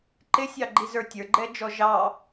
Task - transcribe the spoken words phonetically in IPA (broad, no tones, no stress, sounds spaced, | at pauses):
ǃ ɪ sʲ ɑ ɡ͡ǃ i z ə˞ tʲ ə˞ ɡ͡ǃ ɛ d͡ʒ ɔ ʒ ɑ